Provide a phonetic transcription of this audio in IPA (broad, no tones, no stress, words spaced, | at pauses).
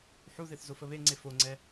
ħuðeθzofə βeŋ͡ǀe foŋ͡ǀɛ